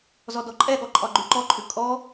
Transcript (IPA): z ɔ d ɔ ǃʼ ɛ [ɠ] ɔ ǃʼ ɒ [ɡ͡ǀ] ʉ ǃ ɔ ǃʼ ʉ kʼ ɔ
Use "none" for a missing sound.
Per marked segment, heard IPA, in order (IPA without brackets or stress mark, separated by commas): ɠ, ɡ͡ǃ